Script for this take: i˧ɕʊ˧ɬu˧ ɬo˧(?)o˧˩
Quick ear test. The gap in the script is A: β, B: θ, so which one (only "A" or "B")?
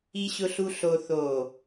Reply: B